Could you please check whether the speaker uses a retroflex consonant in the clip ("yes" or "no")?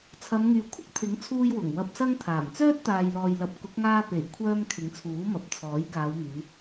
no